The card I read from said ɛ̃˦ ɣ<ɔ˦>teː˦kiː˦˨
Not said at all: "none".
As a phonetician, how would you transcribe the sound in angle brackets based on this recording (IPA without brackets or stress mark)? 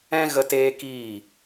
ə˦